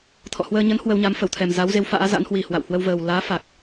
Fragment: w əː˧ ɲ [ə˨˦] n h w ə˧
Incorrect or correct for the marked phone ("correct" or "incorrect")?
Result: correct